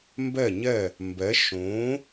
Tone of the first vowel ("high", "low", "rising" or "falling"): falling